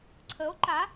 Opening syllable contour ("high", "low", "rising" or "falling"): rising